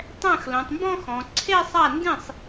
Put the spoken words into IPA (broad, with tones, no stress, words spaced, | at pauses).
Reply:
tˤɛ̃˥˩x lõ˩˧tˤmbɔ̃˥˧ xɔ̃˩˧ ǀʰe˥˧sˤa˥˩ndĩ˥˩sˤ